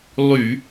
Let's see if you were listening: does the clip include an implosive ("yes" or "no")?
no